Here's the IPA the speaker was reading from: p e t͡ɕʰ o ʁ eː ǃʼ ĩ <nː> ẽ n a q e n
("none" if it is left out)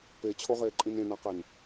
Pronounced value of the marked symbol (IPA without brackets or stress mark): n